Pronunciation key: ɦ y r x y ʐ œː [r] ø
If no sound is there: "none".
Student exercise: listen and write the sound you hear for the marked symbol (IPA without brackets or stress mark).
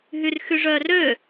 r